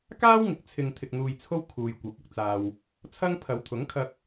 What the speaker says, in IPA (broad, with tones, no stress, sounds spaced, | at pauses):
k aː˥ w ŋ ɪ˨ k̚ t͡sʰ ɪ˨ ŋ t̪ʰ ɪ˨ k̚ n̪ uː˨ j t͡sʰ o˥ w kʰ uː˨ j kʷ ɐ˨˥ p̚ ʊ˧ k̚ t͡s aː˨ w | t͡sʰ ɐ˥ ŋ pʰ ɐ˨˧ w t̪ʰ ʊ˨˥ ŋ kʰ ɐ˧ k̚